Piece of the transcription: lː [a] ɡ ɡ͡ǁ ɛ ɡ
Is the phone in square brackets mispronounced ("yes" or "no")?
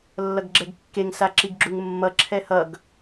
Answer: yes